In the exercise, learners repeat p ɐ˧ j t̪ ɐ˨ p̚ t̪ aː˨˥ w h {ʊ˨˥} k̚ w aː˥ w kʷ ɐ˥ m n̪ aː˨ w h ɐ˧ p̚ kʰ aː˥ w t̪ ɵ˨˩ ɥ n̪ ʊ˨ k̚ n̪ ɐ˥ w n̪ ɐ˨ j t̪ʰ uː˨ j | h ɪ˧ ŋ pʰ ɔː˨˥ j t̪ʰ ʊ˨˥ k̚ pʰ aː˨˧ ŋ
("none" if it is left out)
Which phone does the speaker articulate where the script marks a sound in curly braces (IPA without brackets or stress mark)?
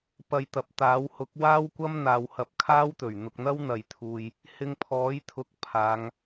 ʊ˨˥